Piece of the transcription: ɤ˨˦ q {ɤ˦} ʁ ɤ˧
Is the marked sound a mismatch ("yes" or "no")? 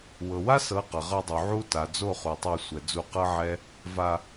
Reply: yes